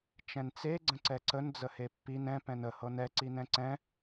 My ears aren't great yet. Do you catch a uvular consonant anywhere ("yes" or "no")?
no